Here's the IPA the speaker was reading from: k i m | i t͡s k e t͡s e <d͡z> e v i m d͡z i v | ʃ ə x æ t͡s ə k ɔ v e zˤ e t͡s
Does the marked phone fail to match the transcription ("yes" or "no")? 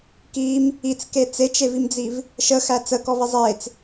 yes